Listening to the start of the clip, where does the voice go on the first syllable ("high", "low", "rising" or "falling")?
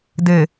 low